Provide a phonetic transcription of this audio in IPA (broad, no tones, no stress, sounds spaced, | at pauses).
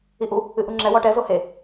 i ʔ u | ɨ ʔ u ŋ͡ǁ ɛ w ɔ ʈ ɛ z o h e